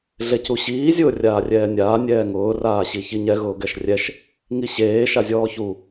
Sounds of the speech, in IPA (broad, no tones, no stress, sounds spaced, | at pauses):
ɮ e c u ɕ iː zʲ ʊː rʲ aː rʲ ɛː nʲ aː nʲ ɛː ŋ ʊː r aː ɕ i ç i ɲ ɛ ɣ ʊː ɡ ɛ ʃ rʲ ɛ ʃ | ŋ i ɕ eː ʃ a zʲ ɔː ç u